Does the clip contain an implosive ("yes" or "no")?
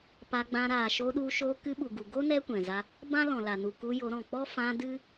yes